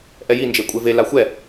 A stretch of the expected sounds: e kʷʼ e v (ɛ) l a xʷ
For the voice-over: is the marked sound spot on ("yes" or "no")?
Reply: no